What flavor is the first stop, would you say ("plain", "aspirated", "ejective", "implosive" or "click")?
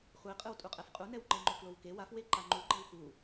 ejective